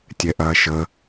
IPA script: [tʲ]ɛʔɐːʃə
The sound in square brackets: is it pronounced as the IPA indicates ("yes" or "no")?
yes